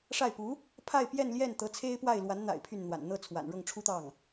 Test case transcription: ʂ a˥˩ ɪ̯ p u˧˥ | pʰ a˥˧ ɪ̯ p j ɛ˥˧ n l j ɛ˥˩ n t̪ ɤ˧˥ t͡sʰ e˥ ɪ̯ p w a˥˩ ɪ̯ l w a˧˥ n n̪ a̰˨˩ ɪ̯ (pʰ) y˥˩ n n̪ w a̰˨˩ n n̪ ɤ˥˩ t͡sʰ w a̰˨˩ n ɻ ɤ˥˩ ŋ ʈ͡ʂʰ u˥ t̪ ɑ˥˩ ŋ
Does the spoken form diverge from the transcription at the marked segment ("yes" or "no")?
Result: no